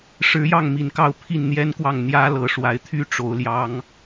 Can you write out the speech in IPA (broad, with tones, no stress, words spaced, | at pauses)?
ʂɻ̩˧˥jɑ˥˩ŋ mi˨˩nkɑ˥˧ʊ̯ pʰi˥˩nn̪jɛ˥nkwɑ˥˩ŋ n̪jä˥ lɤ˨˩ʂwa˧˥ɪ̯t̪ʰy˥ ʈ͡ʂo˧˥ʊ̯ljɑ˥ŋ